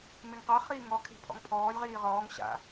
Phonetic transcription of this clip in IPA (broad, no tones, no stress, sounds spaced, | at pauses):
m e ŋ q a χ iː ŋ ɔ kʰ e̤ pʰ ɔ̰ ŋ pʰ ɔː lʲ ʁ iː ʁ ɔː ŋ ɕ a̰